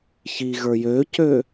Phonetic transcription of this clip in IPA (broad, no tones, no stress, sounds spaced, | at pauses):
ç i ɣ ə˞ j ø c ø